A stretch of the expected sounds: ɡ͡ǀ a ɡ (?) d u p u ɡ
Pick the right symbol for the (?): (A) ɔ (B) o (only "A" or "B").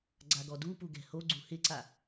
A